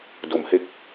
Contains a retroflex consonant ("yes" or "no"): no